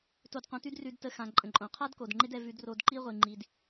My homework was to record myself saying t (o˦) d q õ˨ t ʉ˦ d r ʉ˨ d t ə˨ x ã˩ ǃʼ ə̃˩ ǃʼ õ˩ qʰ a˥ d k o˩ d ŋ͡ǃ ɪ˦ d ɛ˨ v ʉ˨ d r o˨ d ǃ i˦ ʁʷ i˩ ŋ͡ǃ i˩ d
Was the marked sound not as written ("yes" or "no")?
yes